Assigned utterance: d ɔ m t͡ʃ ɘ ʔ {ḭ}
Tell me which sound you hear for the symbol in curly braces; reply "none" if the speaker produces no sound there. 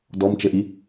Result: i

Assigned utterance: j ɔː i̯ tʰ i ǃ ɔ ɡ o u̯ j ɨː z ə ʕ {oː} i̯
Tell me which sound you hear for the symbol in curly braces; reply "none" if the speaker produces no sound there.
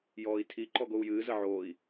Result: oː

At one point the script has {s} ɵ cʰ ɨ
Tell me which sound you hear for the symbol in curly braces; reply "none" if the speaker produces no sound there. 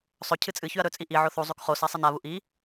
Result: sˤ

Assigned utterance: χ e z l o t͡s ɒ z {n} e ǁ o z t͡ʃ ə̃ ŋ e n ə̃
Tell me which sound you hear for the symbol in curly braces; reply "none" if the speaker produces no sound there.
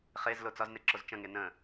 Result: n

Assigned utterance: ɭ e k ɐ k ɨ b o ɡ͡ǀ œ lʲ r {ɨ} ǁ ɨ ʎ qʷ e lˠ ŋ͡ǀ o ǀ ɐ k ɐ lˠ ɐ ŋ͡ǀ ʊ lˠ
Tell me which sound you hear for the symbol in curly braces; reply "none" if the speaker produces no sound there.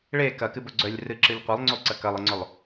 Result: ɨ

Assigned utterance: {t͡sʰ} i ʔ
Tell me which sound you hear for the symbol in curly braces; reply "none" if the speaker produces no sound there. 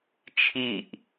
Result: t͡ʃʰ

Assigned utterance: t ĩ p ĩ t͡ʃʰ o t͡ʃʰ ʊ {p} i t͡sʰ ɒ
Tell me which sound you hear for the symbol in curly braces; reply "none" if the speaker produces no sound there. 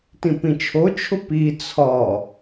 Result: p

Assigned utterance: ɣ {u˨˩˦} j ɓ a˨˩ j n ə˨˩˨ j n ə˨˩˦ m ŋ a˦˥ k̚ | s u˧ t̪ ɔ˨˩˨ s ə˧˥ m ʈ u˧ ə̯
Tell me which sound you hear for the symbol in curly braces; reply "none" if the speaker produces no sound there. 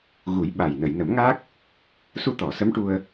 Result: u˨˩˦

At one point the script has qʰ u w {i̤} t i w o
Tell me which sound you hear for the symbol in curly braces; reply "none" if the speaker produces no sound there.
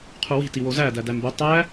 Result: i̤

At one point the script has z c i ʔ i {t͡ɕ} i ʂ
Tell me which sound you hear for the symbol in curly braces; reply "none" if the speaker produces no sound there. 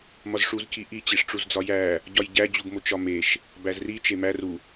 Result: t͡ɕ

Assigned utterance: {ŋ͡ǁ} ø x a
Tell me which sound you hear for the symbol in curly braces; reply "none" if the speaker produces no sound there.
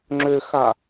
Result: ŋ͡ǁ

